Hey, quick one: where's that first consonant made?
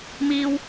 lips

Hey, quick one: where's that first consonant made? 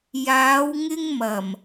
palate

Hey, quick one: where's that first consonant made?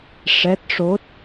retroflex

